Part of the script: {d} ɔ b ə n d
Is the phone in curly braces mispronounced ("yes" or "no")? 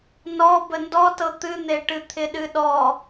yes